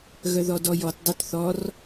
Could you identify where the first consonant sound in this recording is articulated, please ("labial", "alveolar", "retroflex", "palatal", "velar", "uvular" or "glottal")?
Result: velar